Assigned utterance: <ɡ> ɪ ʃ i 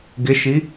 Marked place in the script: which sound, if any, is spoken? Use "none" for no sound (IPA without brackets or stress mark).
ɡ